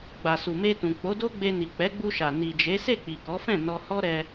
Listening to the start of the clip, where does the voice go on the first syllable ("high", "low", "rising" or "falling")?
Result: low